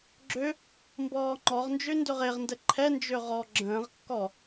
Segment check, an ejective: absent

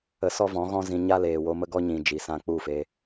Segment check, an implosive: absent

